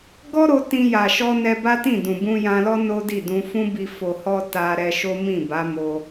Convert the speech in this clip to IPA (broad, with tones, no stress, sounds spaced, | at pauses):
ɡ ɔ˦ ɾ o˧ t ĩ˧ j a˨ ʃ ɔ˧ n ɛ˧ b a˦ t ĩ˦˨ d ũ˨ b ũ˧ j ã˧ l ɔ˦ n o˦ d i˦˨ d ũ˧ f ũ˦ b i˧ f o˨ h ɔ˧ t a˧ ɾ ɛ˧ ʃ o˦ m ĩ˦˨ b a˨˦ m o˧